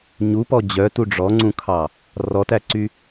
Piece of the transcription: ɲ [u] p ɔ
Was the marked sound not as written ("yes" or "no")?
no